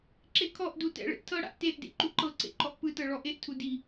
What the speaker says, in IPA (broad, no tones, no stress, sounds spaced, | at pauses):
ǁ e kʰ ɔ ʔ d u t ɛ̰ ɭ ḛ ʔ tʰ ɤ ɽ a̰ ʔ t e ʔ d ḛ ǃ u ǃ ɤ ǀ ḛ ǃ ɔ ʔ p ɯ t ɤ ɭ ɔ ʔ e ʔ tʰ u d i